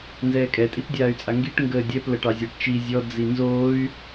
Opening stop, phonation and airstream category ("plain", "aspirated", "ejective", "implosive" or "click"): ejective